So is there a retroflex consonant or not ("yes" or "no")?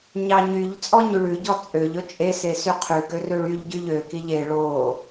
yes